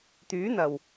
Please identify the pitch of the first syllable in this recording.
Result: rising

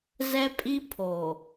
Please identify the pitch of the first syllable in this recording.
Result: high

